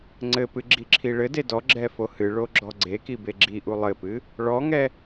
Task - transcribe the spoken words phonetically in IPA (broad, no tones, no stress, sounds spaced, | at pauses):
ŋ͡ǀ ɘ p ɨ ɡ͡ǁ i ǁʰ i ɭ ɘ d e d ɔ ɡ͡ǁ ɛ f o h ɨ ɭ o ɡ͡ǁ ɔ ɡ͡ǀ e k i b e ɡ͡ǁ i ʔ u lˠ ɘ p ɨ | ɭ ɔ ŋ ɛ